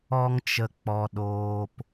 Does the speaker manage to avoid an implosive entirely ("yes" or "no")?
no